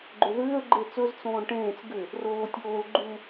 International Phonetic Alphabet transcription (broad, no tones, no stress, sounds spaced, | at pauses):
ɡ͡ǃ ʏ ð ʏː ə̯ ɡ͡ǃ e t͡s ɵ z t͡s õː ɳ ʈ ẽː t͡s ɡ ʏ | r oː tʲ oː l ɡ͡ǃ u